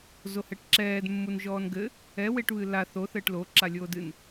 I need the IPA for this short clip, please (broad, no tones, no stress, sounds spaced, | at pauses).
z o h ɛ ʈ ǁ ɛː d mː u n ʒ ɔː n ɡ ɘ | ɛ w e ʈ β ɨ l a θ o θ ɘː ʈ l o ǁ a lʲ oː d ɨ n